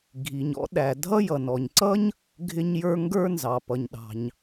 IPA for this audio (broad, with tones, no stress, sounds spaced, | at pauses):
ɡʱ i˩ ɲ ɔ̰˥ ɗ æ˩ dʱ ʌ˥ j ʌ˩ n ɔ˩ ɲ ǀ ʌ˥ ɲ | ɡʱ ɪ˥ ɲ j ə˞˥ ŋ ɡ ə˞˥ n z ɑ˩ p ʌ˩ ɲ ɗ ɑ̤˩ ɲ